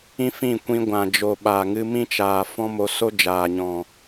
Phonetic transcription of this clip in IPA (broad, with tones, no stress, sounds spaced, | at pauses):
ĩ˦ f ĩ˦˨ kʷ ĩ˧ ɡʷ ã˨ d͡ʒ o˨ ɓ a˨ ŋ ɨ˧ m ĩ˦ t͡ʃ aː˨ f ɔ̃˦ m o˧ s o˦ d͡ʒ aː˨ ɲ ɔ̃˨